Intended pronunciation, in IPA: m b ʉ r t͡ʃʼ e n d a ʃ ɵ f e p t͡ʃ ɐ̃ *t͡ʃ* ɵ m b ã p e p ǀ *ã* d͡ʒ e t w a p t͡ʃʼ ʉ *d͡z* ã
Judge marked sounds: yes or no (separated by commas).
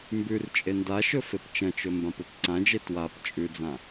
yes, yes, yes